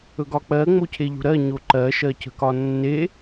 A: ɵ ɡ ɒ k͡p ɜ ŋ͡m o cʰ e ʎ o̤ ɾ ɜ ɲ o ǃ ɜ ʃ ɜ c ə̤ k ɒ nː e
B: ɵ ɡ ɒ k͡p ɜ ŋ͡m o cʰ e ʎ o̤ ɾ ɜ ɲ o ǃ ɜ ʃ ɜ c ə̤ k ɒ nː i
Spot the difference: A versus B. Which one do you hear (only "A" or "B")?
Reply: A